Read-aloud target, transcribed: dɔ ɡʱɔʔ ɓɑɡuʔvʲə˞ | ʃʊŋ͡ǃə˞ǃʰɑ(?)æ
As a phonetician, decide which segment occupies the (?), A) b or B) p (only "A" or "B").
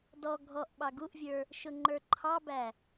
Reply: A